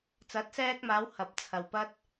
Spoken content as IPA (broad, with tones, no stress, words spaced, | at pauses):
t͡sɐ˨˥t̚sɛː˧k̚maː˨˧w hɐ˨p̚t͡sʰɐ˨w pɐ˧t̚